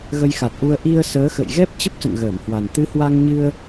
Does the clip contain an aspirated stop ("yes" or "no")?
no